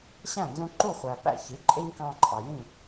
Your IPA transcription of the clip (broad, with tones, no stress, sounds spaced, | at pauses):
ɕ æ̃˥˨ n z ũ˦ ǃ u˥˨ χʷ æ˨ p æ̰˥˨ ç i˩˥ ǃʼ ɪ˦ ɲ k ɑ̃˦ ǃʼ ɑ˨ j ĩ˥˨